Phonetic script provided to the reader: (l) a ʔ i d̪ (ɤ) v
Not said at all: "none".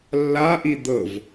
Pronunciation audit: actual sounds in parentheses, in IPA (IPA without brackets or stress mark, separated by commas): lː, ɤ